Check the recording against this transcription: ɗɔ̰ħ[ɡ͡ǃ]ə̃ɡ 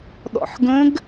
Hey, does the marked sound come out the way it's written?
no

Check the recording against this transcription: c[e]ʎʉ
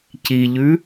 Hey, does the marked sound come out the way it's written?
no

